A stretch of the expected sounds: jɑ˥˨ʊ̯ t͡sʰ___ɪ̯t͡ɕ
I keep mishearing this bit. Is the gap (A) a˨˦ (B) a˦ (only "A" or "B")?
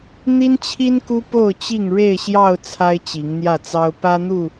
B